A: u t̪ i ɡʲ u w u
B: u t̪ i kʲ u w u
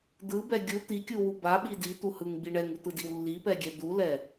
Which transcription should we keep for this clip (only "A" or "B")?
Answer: B